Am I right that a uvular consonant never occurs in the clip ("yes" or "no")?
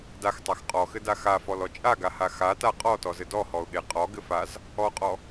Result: no